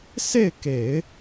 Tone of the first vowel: falling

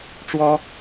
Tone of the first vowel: high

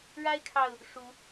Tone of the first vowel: high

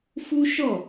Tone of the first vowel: high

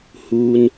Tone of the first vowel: low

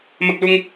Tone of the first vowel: high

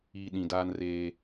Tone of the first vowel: low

